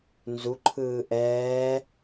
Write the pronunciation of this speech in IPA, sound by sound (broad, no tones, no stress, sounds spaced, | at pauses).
n z u ǃʰ ɯː ʔ ɛː